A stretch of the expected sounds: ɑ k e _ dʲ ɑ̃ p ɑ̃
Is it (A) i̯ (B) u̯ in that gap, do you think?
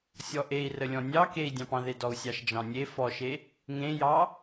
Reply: A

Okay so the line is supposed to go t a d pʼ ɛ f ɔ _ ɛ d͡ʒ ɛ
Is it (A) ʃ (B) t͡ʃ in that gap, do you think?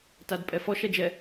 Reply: A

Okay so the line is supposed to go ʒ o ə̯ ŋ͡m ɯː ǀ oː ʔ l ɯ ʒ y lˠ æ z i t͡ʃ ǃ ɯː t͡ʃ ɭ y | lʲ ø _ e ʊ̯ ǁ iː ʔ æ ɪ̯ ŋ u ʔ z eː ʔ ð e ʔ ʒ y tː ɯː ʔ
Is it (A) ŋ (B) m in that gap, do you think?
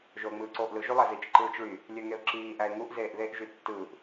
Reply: A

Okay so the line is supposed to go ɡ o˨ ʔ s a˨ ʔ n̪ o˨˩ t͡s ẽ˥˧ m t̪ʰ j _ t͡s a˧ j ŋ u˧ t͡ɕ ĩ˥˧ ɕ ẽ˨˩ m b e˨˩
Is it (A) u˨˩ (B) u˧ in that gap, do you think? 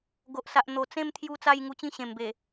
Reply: B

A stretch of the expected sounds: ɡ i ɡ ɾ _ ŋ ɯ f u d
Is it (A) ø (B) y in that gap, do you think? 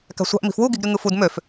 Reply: B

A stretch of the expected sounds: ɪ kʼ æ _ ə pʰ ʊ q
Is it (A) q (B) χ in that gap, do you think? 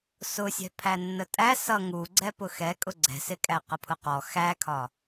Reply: A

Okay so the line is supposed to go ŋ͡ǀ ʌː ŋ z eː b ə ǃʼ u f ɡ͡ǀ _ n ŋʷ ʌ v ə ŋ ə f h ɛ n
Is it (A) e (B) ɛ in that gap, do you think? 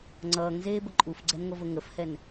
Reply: B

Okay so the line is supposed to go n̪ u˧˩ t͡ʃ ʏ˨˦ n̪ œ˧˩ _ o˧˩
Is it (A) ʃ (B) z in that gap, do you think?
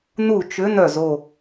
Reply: B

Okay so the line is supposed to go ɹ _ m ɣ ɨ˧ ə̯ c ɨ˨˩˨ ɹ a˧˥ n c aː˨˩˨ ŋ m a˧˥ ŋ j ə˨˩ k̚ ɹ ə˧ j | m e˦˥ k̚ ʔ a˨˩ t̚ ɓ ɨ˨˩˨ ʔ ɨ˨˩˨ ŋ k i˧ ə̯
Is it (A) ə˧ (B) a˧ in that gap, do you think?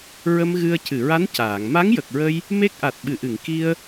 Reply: A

